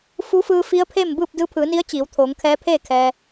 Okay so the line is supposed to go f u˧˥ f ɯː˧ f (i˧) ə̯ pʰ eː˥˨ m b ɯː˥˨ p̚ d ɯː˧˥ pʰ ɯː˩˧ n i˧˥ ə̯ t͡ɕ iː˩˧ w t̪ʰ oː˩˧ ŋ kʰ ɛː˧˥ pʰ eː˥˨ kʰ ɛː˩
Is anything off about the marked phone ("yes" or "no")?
yes